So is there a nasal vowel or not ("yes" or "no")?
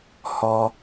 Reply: no